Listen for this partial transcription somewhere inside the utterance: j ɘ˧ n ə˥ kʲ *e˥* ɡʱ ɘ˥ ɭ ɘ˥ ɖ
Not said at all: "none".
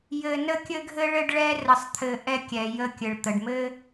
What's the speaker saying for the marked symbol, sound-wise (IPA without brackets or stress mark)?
ɘ˥